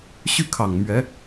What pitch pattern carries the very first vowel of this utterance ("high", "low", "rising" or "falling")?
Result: falling